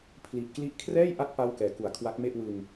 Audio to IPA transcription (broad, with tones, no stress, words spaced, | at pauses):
pʰli˨˩ʔkli˥˩ʔ kʰrɛː˥˩jʔa˦˥t̚ pa˥˩w kɛː˩˦ku˩˦a̯ kʰwa˦˥k̚me˥˩ʔwɯ˧ŋ